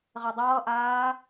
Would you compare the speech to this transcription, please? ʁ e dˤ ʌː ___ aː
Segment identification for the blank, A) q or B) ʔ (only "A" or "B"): B